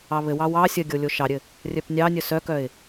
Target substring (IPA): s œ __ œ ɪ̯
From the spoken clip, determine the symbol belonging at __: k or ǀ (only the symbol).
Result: k